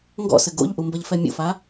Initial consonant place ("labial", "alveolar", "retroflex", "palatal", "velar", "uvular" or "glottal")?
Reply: velar